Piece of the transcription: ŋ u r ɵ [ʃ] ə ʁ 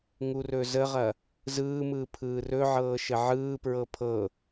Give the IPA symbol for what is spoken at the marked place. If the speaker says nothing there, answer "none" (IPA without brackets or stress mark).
z